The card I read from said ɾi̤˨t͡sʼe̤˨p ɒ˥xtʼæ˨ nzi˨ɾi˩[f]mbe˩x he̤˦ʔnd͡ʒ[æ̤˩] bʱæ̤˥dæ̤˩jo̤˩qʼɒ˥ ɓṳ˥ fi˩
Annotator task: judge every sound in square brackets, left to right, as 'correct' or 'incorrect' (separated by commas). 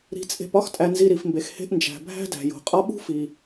correct, correct